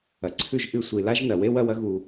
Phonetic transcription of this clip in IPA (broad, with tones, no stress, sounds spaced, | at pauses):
ɐ˨ ǀʰ ʉ˦˨ ʒ ʔ ɨ˧ sʷ i˨ l a˦ ʒ n ɐ˨ w e˦ w ɐ˧ w ɐ˦ ɣ u˨